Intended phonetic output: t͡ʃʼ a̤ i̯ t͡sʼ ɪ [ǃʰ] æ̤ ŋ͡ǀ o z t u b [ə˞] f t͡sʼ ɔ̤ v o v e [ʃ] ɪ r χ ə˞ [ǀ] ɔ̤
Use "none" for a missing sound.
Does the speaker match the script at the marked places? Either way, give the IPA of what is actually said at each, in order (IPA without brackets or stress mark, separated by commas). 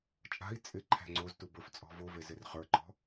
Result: ǃʰ, ə˞, z, ǃ